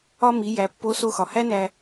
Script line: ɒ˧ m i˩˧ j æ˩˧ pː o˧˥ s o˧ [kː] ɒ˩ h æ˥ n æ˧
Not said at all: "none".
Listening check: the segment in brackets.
x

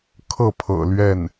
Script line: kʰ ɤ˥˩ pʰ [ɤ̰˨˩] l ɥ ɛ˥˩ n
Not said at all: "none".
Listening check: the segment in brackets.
ɤ̰˨˩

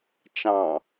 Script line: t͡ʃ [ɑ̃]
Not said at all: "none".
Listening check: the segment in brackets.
ɑ̃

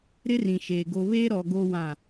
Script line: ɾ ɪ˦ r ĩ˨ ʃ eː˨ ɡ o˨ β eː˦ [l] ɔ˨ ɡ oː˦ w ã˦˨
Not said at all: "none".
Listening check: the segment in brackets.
ɾ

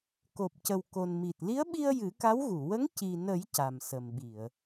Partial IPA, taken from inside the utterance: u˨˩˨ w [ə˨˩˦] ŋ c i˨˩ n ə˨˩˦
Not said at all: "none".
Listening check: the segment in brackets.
ə˧˥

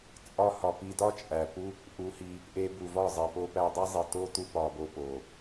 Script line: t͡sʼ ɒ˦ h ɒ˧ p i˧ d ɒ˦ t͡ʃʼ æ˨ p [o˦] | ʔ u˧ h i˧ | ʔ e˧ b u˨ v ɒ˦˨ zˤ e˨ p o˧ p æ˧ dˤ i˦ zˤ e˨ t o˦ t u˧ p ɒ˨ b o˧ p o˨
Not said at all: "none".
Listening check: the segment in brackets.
u˦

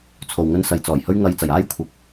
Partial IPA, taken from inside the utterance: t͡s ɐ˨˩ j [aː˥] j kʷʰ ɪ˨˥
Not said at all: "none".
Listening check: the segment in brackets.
aː˥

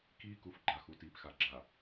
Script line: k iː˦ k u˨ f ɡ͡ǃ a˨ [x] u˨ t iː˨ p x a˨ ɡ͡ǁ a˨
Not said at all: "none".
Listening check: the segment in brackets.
x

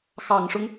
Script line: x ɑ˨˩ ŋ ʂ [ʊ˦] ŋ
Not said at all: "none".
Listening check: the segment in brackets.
ʊ˦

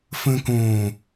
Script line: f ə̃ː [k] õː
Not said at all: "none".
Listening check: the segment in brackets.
k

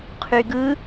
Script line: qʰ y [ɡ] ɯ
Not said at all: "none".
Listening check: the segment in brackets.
ɡ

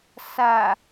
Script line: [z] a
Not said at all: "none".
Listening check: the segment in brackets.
s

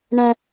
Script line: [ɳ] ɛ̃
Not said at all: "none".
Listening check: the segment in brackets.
ɳ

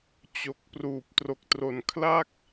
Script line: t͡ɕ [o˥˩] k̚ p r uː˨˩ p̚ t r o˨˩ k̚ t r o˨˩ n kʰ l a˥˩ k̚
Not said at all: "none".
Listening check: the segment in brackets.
o˨˩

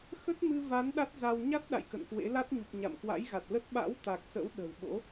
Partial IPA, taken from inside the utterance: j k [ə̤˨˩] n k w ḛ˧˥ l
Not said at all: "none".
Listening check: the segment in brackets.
ə̰˧˨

